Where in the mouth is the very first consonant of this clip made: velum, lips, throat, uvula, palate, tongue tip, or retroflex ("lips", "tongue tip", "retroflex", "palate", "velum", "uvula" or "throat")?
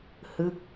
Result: throat